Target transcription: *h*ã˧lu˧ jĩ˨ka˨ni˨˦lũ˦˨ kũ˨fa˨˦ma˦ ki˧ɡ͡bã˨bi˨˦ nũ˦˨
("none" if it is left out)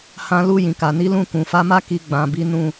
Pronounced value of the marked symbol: h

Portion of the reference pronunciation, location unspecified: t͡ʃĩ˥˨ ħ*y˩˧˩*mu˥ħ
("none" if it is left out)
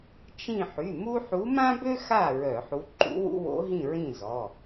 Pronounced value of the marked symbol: y˩˧˩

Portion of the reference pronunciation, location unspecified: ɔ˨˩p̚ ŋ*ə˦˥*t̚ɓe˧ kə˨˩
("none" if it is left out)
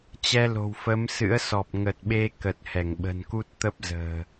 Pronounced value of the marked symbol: ə˨˩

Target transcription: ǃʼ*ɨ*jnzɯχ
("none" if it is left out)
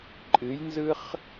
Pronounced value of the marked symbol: ɨ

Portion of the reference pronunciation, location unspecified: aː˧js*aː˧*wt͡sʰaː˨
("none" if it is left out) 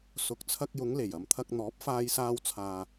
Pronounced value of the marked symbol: aː˧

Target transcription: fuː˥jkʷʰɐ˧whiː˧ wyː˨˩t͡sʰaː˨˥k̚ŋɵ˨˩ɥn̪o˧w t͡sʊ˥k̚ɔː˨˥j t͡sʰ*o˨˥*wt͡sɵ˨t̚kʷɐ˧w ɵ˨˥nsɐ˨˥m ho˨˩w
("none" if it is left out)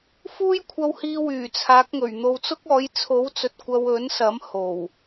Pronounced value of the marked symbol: o˨˥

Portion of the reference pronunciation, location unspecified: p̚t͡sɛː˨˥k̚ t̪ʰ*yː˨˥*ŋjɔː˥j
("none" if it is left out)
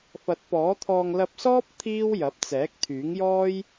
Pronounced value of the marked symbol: yː˨˥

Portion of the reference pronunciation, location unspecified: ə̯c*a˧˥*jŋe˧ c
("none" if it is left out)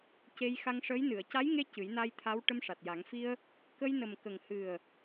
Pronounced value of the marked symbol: a˧˥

